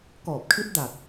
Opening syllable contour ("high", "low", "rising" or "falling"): low